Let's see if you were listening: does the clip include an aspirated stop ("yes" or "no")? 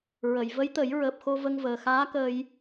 no